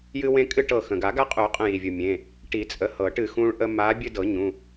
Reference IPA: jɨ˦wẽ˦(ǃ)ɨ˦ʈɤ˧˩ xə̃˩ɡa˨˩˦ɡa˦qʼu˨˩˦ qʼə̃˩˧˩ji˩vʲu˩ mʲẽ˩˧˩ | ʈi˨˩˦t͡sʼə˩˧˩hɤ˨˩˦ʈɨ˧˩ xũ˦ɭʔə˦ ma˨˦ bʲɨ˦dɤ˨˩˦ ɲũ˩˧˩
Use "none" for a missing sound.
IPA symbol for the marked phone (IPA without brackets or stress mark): kʼ